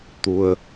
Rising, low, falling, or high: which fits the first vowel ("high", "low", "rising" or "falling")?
low